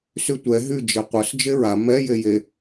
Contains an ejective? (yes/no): no